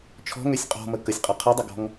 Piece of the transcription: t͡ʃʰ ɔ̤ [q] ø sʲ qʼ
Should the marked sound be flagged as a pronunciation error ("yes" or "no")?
yes